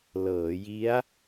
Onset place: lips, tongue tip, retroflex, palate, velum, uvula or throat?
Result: tongue tip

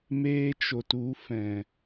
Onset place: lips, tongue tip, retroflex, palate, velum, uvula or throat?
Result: lips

